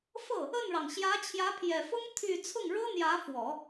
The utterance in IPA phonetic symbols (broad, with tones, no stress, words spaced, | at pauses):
fɤ˥˩ | ə˥˩nɻɑ˩ŋ ɕjä˧˥t͡ɕʰjä˧˥pʰjɛ˨˩fʊ˥ŋ t̪ʰy˥˧ t͡sʰʊ˥˩ŋɻɤ˥n̪jä˧˥fwɔ˨˩˦